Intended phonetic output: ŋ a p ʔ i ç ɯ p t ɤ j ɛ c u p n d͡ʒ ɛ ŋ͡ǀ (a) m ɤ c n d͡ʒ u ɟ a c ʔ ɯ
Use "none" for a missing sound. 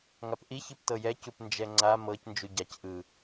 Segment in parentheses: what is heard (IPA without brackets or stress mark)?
a